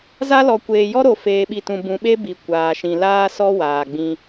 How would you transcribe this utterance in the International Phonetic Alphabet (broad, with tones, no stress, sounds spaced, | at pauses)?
z a˦ l ɔ˨ kʷ eː˨ j ɔ˦ ɾ o˨ f eː˨ ɓ i˨ t ũ˨ b ũ˨ ɓ e˦ b i˨ kʷ aː˨ ʃ ĩ˨ l aː˦ s ɔ˦ w aː˨ ɡ͡b ĩ˦